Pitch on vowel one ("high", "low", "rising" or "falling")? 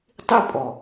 falling